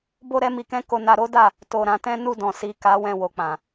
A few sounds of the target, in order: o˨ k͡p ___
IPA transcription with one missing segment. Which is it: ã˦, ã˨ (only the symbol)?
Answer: ã˨